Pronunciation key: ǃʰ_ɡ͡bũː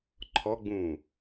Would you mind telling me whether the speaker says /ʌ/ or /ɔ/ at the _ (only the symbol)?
ɔ